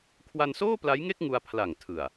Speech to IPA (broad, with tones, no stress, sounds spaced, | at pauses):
kʰ w a˧ n s oː˥˩ p l a˦˥ j ŋ e˥˩ k̚ ŋ u˧ a̯ pʰ l a˨˩ ŋ tʰ ɯ˨˩ a̯